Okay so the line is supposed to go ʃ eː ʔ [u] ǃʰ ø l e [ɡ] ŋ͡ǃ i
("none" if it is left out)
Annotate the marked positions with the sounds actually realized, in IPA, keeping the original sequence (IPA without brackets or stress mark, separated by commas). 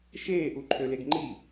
u, ɡ